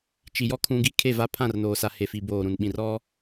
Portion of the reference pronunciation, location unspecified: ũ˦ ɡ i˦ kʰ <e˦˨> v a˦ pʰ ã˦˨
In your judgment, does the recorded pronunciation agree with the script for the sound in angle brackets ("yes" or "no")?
yes